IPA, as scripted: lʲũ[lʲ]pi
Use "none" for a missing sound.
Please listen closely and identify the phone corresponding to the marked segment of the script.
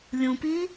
none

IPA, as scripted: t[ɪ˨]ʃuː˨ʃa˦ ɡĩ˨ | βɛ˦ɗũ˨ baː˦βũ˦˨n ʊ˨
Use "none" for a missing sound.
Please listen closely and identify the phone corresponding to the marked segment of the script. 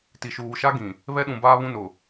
i˨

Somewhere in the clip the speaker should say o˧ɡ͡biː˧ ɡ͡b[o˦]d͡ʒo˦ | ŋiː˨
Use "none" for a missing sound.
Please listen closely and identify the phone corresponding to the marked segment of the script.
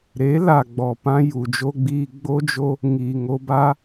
o˦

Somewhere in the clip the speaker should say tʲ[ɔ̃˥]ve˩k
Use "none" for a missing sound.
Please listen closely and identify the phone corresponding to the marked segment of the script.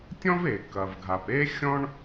ɔ̃˥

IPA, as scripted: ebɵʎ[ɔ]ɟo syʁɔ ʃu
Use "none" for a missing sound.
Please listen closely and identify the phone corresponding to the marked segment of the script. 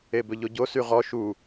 o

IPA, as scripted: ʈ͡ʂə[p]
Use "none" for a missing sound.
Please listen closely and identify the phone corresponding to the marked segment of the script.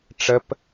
p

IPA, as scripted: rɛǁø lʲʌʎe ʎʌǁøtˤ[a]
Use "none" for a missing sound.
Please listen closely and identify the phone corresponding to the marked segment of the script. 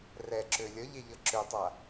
a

